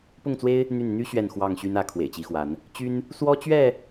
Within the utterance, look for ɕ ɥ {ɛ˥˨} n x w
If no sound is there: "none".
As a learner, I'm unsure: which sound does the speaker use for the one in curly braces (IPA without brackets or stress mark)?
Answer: ɛ˥˨